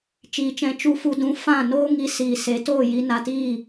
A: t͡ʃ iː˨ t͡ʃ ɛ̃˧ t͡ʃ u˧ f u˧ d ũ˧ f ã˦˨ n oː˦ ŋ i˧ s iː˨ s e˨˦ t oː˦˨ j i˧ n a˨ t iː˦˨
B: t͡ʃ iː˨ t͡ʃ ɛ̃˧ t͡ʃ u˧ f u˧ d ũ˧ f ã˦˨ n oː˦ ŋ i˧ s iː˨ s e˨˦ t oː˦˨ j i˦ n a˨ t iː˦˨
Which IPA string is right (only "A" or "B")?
A